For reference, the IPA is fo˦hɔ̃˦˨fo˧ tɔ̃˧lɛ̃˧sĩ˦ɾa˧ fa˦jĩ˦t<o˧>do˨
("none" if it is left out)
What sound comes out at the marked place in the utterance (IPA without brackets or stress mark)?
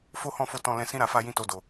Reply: o˧